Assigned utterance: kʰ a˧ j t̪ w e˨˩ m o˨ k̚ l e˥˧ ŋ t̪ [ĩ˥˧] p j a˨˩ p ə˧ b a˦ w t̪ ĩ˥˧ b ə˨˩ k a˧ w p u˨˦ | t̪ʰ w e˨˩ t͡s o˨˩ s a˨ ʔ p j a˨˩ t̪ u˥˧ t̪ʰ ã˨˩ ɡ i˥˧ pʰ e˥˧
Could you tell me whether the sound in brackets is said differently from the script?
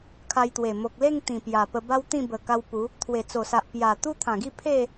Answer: yes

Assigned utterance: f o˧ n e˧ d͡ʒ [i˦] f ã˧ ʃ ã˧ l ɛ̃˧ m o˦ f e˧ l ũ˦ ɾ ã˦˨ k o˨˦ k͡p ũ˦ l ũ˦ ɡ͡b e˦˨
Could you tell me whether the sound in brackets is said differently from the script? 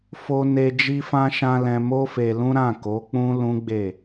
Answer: yes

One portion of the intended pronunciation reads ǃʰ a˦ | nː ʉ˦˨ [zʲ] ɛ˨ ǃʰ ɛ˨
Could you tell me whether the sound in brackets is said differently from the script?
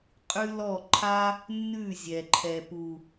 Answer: no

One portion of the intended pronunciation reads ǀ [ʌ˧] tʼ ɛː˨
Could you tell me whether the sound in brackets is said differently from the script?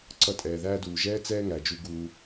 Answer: no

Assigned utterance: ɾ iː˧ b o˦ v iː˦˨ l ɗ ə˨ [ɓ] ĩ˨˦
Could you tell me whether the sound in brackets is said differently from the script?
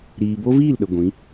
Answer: yes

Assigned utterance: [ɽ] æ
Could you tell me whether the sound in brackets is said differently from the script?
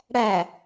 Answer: no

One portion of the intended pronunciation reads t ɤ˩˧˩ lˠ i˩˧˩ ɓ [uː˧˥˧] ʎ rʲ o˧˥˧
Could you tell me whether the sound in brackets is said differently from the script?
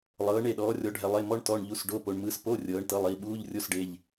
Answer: no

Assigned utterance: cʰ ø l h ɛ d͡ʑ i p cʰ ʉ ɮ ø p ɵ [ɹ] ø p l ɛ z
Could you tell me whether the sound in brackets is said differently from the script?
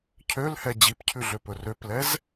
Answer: yes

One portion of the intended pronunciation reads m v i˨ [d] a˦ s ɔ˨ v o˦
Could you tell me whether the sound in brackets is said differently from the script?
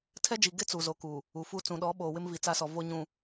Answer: yes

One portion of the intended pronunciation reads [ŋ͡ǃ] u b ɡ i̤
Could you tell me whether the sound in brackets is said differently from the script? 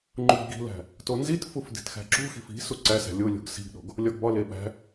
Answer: no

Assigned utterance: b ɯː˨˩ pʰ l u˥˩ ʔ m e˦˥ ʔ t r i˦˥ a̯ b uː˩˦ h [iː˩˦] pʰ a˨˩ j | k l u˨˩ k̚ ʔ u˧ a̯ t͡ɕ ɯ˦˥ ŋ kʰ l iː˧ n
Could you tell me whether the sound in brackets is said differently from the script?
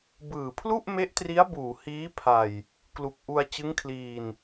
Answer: yes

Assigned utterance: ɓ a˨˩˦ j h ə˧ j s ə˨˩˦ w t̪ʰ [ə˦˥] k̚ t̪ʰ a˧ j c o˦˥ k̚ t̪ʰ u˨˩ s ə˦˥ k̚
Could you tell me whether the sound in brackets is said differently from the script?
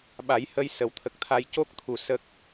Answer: yes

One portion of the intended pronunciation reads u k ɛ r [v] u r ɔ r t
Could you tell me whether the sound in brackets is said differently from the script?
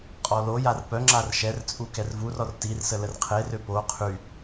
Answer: no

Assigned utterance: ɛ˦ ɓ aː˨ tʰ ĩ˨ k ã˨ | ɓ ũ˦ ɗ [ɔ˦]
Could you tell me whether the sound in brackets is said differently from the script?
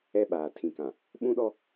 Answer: no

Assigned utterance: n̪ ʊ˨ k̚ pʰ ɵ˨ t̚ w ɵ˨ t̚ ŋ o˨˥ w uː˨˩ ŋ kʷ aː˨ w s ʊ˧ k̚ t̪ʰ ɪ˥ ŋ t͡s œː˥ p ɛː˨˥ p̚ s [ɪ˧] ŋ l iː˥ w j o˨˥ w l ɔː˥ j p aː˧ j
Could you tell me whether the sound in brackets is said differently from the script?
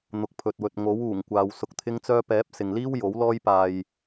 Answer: yes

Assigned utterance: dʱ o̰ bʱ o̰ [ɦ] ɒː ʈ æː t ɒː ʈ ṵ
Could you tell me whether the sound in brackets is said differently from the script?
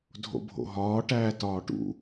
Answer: no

